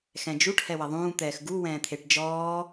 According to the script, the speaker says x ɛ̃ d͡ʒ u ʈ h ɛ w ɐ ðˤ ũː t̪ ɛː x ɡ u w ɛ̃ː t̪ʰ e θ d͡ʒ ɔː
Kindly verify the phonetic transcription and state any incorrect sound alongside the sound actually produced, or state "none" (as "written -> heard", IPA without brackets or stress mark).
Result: θ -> ʈ